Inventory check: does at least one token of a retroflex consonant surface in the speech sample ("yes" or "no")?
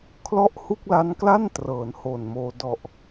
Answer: no